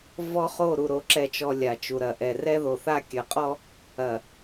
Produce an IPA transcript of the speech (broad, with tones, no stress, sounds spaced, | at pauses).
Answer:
v ɔ˦ χ o˦˨ ɾ u˨ ɾ o˨ ǁ ɛ˨ t͡ʃ ɔ˨ lʲ a˨ t͡ʃ u˨ ɾ ɐ˨ ʔ ɛ˨ r ɛ˦ ð o˨ θ a˦ kʲ ɐ˨ qʼ ɔ˦ | ɐ˨